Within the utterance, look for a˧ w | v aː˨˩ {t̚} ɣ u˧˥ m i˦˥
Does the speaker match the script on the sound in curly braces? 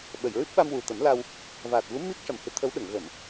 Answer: yes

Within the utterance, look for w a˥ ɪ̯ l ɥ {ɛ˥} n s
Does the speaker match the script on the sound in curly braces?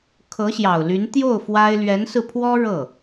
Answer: no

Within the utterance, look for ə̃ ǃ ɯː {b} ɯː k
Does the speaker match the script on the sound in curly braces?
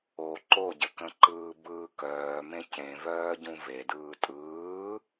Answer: yes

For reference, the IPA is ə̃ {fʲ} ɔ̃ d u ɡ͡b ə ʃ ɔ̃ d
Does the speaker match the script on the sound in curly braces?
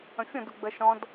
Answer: yes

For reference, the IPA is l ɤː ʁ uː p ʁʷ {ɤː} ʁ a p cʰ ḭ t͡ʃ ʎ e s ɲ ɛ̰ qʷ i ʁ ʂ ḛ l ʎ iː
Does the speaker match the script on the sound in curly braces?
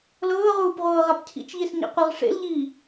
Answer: yes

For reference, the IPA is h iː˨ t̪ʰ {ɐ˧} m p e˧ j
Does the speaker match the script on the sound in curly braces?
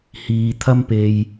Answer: no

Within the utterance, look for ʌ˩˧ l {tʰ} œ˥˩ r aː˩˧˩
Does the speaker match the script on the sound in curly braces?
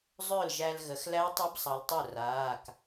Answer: no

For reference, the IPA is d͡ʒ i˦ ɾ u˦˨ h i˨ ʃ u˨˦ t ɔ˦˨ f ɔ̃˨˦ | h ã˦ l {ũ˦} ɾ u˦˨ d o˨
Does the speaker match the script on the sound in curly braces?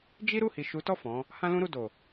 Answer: yes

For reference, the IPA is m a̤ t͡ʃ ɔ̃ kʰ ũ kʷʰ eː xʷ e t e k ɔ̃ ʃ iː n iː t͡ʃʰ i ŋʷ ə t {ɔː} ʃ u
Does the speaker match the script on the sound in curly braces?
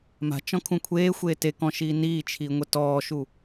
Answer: yes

